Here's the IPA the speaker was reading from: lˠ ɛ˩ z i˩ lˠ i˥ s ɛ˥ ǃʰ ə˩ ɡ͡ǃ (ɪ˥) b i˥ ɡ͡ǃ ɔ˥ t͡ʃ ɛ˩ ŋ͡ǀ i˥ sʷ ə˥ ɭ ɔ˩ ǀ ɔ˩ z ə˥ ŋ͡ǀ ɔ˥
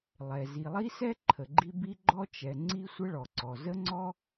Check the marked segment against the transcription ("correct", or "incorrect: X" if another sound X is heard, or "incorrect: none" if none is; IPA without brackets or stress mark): incorrect: i˥